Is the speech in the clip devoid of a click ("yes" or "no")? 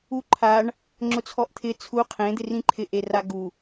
no